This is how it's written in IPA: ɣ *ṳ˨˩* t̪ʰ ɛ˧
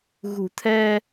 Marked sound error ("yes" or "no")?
no